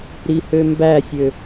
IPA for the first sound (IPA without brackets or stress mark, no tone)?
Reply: ɾ